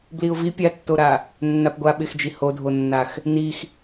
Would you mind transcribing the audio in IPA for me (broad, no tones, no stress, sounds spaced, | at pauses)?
b l i ʊ̯ v i pʲ a tː o ɾ a | nː a p ɡʷ a ɓ ɪ x d͡ʒ i h o dʱ o nː a x | n i x